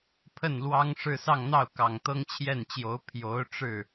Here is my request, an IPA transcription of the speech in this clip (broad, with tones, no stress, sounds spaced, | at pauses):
pʰ ə˥˩ n l w ɑ˥ ŋ ʂ ɻ̩˥˧ s ɑ˥˧ ŋ n̪ ɑ˥˩ ʊ̯ k ɑ˨˩ ŋ t̪ ɤ˥ ŋ t͡ɕʰ j ɛ˥˩ n t͡ɕ j o˧˥ ʊ̯ pʰ j o˧˥ ʊ̯ ʈ͡ʂ ɻ̩˥˩